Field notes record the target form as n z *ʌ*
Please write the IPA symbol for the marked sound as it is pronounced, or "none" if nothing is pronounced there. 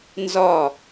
ɒ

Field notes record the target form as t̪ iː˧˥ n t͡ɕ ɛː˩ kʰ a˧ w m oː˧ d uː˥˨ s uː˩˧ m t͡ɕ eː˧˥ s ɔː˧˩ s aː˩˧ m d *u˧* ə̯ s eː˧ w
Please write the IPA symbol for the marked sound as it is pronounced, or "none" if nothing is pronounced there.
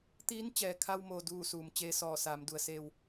u˩˧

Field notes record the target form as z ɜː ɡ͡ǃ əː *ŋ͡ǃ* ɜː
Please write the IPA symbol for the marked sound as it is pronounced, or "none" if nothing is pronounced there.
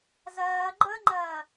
ŋ͡ǃ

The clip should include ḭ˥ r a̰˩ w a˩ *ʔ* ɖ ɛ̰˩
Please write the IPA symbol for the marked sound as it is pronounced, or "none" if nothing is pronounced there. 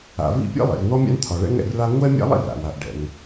ʔ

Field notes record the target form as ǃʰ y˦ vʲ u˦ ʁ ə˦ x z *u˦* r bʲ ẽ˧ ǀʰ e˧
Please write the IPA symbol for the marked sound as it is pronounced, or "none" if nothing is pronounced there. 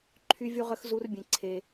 u˦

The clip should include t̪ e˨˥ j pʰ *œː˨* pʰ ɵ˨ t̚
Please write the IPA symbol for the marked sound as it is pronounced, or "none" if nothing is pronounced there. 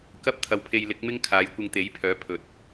œː˨˥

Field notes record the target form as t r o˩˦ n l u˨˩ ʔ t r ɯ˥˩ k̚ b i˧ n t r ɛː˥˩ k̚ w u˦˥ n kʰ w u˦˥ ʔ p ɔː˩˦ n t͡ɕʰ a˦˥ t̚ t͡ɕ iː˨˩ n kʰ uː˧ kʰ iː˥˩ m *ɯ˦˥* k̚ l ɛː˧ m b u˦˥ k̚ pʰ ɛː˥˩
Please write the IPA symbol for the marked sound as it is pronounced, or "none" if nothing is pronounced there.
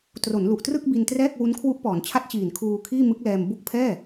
ɯ˦˥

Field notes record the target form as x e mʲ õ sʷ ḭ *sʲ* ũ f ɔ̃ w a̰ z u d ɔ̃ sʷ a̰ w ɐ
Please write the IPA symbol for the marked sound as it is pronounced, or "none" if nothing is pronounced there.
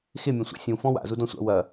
sʲ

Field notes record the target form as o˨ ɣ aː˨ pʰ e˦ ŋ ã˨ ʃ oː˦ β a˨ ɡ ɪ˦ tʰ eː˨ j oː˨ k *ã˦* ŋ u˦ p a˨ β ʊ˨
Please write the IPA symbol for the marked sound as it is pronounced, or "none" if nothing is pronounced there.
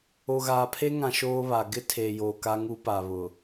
a˦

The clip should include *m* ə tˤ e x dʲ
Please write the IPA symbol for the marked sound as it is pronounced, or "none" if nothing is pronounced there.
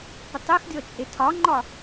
p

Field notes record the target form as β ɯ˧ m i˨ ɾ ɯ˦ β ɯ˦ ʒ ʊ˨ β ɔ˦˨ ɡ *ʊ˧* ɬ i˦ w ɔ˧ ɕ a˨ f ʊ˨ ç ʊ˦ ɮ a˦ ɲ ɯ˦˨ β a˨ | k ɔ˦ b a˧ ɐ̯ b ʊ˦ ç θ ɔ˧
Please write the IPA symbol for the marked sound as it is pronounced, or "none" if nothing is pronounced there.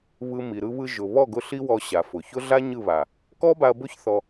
ʊ˧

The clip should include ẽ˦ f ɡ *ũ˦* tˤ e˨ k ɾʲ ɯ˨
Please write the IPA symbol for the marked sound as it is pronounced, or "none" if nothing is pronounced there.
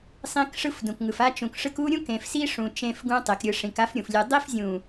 ũ˦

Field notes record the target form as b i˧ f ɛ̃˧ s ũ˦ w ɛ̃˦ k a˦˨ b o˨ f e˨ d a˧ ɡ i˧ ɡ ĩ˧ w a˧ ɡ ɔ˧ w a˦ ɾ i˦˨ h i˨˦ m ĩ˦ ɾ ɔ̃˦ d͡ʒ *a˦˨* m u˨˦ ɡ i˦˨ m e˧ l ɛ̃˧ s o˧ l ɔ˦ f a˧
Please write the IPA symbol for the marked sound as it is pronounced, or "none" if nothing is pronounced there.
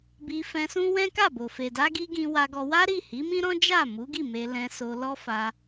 a˦˨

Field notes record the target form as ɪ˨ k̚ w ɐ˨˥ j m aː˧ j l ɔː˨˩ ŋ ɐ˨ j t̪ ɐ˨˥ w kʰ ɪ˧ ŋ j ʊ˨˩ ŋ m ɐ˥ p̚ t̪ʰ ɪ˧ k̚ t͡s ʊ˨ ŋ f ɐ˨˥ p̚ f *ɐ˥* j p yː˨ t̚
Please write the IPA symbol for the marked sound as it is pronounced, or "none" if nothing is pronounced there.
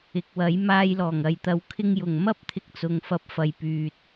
ɐ˨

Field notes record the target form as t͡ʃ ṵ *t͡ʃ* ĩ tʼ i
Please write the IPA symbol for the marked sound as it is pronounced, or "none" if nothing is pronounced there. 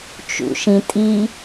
ʃ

